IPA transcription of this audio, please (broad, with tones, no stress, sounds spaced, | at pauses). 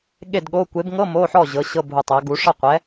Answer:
ɠ e˥˨ d ɠ o˧˥˧ kʷ e˨˦ b ŋ ɤ˧˥˧ m o˧˥˧ ħ ɔ˥˨ ʑ ɤ˨˦ ɕ ɤ˧˥˧ bʱ u˧˩ tˤ a˨˦ ɡ u˨˦ ʂ ɤ˥˨ qʷ ɛ˨˦